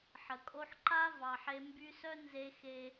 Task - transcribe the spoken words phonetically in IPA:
ħ ə˨ kʼ o˦ ħ ǃ a˥ v ɑ˦ ħ e˥ m b y˦ s œ˥ n z e˥ x e˥

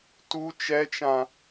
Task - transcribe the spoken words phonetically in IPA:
t u t͡ʃ ɛ t͡ʃ ã

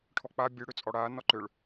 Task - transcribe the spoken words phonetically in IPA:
ʈʰ ɔ k͡p a bʲ ø ɽ ø t͡sʼ ɔ ɽ a n ɔ ǃ ø ɭ

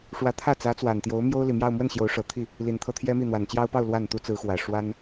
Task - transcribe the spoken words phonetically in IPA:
ʂ w ä˧˥ t̪ʰ ä˥˩ t͡s ä˧˥ t͡s w a˨˩ n t̪ j o˧˥ ʊ̯ m j o˥ ʊ̯ l i˨˩ m j ɑ˥˧ ʊ̯ m w ə˥˩ n ɕ j o˧˥ ʊ̯ ʂ ɤ˨˩ t̪ʰ i˥˩ | l i˨˩ n t̪ʰ ɤ˥˩ t̪ʰ j ɛ˥ m i˥˩ n̪ w a˨˩ n t͡ɕ j ɑ˥ ʊ̯ p ɑ˥˧ ʊ̯ l w a˥˩ n t̪ u˥ t͡s ɹ̩˧˥ x w ä˨˩ ʂ w a˥ n

